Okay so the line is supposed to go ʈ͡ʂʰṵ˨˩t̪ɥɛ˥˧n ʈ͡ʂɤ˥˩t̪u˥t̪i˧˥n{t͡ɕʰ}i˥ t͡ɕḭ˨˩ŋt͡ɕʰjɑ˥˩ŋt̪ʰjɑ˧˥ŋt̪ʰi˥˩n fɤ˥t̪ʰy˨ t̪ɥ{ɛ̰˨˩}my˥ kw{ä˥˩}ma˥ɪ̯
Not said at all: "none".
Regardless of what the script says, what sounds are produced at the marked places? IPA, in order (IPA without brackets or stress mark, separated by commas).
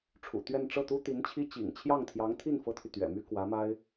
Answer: t͡ɕʰ, ɛ̰˨˩, ä˧˥